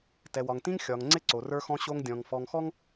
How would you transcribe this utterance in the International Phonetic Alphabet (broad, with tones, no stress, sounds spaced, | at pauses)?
t ɛ˨ w ɒ˨ ŋ t ĩ˦ ŋ xʲ ɒ˨ ŋ ŋ͡ǀ ɪ˦ ǀ o˨ r ə˞˦ x ɔ̃˦ ɕ o˦ ŋ dʲ ɔ̃˨ ŋ f ɔ˨ ŋ x ɔ˦ ŋ